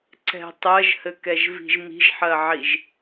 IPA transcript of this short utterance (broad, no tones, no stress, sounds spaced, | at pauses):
ǀ ɛ̤ tˤ ɜ ʒ h ɘ k ɛ ʒ v i̤ ʒ m i̤ ʒ ħ ɜ ʕ i ʒ